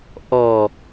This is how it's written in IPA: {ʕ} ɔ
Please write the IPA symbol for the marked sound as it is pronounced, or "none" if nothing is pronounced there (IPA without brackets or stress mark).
ʔ